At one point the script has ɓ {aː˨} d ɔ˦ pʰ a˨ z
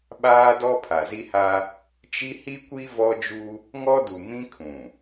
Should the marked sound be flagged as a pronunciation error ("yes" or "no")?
yes